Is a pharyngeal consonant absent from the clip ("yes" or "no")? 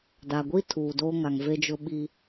yes